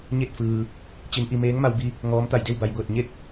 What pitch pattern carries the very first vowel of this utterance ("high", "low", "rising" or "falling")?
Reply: falling